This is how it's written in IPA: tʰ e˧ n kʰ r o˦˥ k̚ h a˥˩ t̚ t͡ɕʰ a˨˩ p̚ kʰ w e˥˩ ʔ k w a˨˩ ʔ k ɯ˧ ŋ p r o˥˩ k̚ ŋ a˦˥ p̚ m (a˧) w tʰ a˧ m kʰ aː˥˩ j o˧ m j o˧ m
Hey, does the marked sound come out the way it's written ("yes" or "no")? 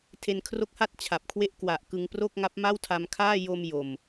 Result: no